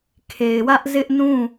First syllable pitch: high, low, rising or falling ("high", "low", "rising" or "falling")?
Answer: low